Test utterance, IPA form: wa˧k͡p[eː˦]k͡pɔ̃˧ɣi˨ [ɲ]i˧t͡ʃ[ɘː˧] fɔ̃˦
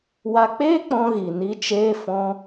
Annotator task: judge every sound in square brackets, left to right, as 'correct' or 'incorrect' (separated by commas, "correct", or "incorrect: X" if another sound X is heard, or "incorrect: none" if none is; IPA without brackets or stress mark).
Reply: correct, incorrect: n, incorrect: eː˧